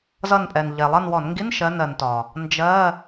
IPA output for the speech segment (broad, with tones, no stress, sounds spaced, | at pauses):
z ʌ˦˨ n pʼ ɛ˨˩ n ʎ ɛ˨˩ lˠ ʌ˦˨ n w ɔ˧˩˧ n ŋ ɡ i˧˥˧ n ʃ ɜ˧˥˧ n ɜ˩˧ n t ɒ˨˩ | n d͡ʒ ɜ˧˥˧